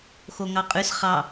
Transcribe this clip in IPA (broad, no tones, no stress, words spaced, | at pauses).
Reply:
xoŋɑqʼʉs χɑ